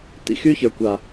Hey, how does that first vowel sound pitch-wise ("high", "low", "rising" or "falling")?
high